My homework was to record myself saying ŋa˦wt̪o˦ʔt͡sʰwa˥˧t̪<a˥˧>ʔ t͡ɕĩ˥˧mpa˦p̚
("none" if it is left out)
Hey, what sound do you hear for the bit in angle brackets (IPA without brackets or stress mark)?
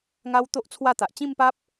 a˨